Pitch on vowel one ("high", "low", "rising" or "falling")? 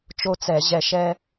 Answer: high